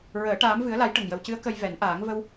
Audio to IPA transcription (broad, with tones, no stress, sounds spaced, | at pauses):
ɹ əː˨˩˦ ʈ aː˧˥ m v ɨ˧˥ ə̯ l a˧˥ j ʈ ə˨˩ ŋ j ə˨˩ w c ɨ˧˥ ə̯ k ə˧ j v ɛ˨˩˦ n ʔ aː˨˩˦ ŋ v ə˧ w